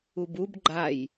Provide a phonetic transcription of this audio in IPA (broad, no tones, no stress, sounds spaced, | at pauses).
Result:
u b u b ɡ͡ǃ a j